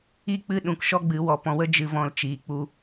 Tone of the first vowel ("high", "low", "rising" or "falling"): falling